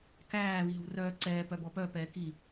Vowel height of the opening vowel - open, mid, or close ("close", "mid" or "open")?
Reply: open